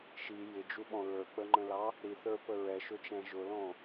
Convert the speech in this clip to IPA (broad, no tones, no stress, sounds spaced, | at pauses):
ʃ i j ɪ d͡ʒ u ɓ ɔ̃ ɹ ə˞ k͡p ə ŋ͡ǃ ə̃ l ɑ | ɾ i θ ə˞ p ə ɹ ɛ ʃ ʊ t͡ʃ æ̃ ʒ ʊ l ɔ̃